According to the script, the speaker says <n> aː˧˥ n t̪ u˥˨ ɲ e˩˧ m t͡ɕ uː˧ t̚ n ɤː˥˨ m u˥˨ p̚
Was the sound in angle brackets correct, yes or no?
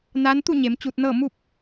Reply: yes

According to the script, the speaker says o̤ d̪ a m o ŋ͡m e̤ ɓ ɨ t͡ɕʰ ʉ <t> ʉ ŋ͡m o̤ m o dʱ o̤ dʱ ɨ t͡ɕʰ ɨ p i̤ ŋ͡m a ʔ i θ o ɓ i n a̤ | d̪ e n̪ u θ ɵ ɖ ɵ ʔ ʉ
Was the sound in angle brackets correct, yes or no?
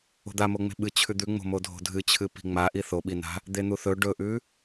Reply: no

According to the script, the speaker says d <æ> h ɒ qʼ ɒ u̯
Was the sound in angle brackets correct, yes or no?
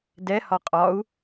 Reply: no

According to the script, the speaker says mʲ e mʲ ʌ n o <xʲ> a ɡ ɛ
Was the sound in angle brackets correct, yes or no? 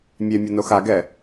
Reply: no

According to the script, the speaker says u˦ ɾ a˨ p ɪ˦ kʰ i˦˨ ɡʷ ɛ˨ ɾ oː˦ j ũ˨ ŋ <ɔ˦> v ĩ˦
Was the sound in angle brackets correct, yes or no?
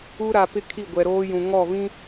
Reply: no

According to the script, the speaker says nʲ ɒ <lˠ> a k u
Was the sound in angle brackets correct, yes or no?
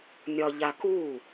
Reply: no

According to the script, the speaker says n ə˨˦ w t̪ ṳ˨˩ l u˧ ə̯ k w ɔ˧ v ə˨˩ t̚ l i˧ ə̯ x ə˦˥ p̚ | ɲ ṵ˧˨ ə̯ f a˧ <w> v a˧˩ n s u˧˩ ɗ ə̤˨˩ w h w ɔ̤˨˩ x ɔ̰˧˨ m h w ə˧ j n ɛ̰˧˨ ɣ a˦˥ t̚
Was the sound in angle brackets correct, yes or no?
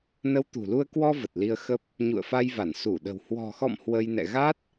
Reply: no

